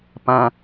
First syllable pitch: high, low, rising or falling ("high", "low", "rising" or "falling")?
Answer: low